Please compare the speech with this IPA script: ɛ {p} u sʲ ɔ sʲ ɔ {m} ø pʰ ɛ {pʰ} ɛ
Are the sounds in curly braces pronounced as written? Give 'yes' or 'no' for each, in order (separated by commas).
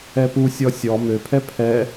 yes, yes, yes